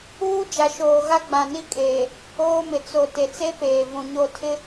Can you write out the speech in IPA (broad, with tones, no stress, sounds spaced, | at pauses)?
uː˦ d͡ʒ a˨ ʃ oː˨ ɣ a˦ ɡ͡b ã˨ n i˦ kʼ eː˨ | oː˦ m ɪ˨ t͡s o˨ t e˨ t͡s e˦ p eː˨ v ũ˨ ɲ o˦˨ tʰ ɪ˦